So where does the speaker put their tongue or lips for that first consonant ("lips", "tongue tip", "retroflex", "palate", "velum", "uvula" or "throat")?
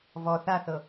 lips